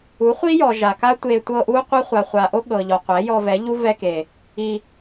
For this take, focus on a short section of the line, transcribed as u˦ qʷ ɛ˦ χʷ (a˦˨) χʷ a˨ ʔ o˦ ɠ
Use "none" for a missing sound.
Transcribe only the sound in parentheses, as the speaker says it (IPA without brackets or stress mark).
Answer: a˨